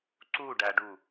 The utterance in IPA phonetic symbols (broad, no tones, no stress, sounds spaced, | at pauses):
ǀ u ɖ æ ɖ u